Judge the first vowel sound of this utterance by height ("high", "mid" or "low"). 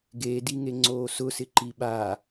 mid